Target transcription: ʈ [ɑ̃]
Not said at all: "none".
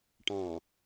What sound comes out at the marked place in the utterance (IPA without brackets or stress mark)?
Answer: ɑ̃